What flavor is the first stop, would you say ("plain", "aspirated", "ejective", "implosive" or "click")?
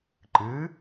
click